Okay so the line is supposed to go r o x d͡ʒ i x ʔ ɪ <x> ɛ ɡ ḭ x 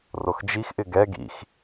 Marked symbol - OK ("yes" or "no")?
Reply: no